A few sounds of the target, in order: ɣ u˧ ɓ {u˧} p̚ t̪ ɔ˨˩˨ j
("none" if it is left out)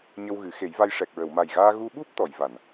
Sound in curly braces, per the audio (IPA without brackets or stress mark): u˦˥